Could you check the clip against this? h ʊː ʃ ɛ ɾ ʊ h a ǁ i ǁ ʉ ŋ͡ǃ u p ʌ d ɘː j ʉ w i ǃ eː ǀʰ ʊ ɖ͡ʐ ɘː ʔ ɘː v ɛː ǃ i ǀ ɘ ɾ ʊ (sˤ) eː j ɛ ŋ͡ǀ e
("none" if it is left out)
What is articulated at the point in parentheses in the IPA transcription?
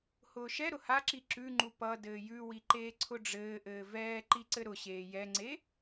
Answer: ɕ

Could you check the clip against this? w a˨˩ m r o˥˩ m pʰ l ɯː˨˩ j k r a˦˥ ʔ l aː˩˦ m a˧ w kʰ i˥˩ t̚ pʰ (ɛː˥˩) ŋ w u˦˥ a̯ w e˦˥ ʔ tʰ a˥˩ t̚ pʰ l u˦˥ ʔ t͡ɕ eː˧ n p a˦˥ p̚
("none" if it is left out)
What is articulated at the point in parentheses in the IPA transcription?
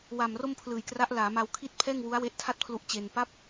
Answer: ɛː˥˩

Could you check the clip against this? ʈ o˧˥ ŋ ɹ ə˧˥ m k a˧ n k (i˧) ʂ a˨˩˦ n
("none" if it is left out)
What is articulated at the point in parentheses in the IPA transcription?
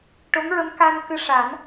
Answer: ɨ˧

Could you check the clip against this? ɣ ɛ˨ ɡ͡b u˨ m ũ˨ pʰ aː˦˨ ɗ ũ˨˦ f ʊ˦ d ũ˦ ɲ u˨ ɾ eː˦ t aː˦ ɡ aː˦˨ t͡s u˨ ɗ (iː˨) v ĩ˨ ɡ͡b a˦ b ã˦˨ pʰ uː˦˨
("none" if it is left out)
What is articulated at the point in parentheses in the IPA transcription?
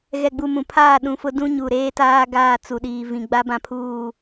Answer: iː˨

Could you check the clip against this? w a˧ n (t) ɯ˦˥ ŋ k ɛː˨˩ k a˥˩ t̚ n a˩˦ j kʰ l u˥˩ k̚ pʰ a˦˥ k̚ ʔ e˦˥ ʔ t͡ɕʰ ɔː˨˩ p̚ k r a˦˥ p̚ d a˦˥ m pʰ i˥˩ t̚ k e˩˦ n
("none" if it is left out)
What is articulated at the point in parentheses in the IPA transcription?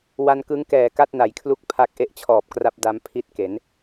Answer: k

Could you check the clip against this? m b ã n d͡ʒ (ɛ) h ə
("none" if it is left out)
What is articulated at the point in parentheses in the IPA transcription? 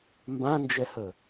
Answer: ɛ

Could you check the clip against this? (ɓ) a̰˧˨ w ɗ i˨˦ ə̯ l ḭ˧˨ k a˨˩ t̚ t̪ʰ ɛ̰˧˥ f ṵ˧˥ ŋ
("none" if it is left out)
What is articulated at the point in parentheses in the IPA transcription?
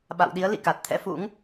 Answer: ɓ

